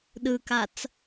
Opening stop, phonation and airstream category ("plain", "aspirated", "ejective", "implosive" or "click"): implosive